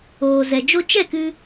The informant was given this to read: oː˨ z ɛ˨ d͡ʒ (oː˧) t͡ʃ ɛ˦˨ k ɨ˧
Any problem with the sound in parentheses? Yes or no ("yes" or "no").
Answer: yes